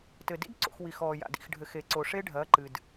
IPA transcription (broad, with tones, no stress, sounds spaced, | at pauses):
t ɘ˨ d ḭ˦ d ǀ o̰˨ x w i˨ x ɔː˨ j a̰˨ d ḭ˨ x ɖʱ ɘ˨ x e˨ ǀ o˨ ʂ e˦ ɖʱ ɐː˨˦ ǃ ɨ˨ d